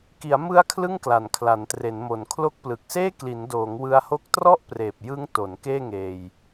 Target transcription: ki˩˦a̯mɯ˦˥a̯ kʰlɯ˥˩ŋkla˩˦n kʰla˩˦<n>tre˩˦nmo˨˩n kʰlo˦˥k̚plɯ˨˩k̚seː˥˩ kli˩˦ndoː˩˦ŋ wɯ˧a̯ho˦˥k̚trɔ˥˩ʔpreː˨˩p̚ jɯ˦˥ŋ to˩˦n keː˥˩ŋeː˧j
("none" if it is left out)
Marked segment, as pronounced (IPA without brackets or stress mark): n